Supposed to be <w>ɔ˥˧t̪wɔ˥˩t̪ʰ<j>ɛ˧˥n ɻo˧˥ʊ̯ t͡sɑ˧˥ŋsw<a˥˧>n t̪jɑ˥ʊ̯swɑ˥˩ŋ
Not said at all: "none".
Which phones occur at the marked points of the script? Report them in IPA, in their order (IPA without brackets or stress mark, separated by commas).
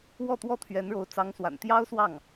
w, ɥ, a̰˨˩